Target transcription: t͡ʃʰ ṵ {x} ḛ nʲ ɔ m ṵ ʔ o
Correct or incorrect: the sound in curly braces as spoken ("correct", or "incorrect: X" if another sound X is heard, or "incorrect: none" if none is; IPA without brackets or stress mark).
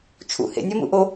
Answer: incorrect: h